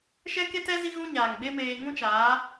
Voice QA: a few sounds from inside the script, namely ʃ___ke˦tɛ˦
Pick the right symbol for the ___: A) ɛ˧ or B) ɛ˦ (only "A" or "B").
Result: B